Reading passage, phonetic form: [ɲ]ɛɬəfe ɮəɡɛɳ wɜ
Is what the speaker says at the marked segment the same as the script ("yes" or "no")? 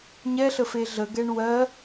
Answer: yes